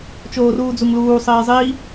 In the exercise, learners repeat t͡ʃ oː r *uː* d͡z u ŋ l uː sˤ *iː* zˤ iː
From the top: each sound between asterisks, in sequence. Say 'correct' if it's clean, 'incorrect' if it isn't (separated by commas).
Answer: correct, correct